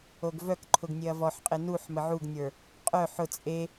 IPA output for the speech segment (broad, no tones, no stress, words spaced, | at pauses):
oɡvœkǃʰʊɡnʲeɐ̯ vɔħqʼe nuħ məʕuɡnʲə˞ | qʼœ ħʊ t͡sʼe